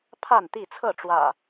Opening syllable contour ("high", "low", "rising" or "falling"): falling